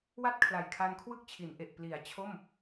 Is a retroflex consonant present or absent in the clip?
absent